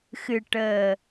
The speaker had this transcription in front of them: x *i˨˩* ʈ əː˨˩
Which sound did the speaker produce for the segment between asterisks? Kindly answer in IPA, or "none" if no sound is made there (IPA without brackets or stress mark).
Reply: ɨ˨˩